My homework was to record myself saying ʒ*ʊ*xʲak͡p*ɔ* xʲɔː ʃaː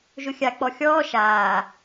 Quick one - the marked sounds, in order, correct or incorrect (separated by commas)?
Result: correct, correct